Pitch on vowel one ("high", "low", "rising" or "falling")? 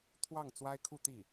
falling